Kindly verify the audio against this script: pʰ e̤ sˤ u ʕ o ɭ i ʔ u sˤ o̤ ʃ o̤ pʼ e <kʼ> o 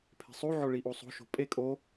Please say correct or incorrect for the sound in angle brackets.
correct